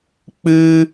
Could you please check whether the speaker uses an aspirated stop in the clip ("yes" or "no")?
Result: no